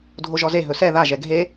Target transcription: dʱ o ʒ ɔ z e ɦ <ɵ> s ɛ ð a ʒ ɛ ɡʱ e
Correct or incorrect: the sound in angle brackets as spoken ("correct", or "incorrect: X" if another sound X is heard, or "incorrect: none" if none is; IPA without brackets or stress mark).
correct